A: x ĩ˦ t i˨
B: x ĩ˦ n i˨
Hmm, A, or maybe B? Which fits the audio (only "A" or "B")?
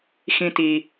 A